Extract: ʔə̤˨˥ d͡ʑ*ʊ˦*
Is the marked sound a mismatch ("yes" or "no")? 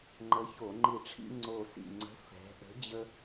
yes